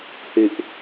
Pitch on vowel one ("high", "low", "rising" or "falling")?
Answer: low